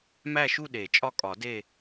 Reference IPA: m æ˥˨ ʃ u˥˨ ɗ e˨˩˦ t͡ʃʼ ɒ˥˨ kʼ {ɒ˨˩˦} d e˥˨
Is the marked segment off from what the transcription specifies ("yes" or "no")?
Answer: no